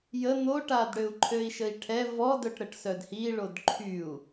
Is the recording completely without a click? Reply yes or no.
no